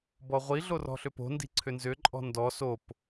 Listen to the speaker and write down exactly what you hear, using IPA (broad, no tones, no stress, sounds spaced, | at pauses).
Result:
b ɔ ʁʷ i ɮ o r ɔ̤ ɬ ʏ p o̤ n d i̤ ǀʰ ʏ n z ʏ ǃʼ ɔ̤ n d ɔ s o p